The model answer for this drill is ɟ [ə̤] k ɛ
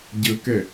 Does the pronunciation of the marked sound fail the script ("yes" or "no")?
yes